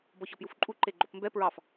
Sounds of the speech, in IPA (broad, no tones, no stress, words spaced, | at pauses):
bɔçɒpjufǃʼu ǃeɡ͡ǃopmbɛ pɹɑf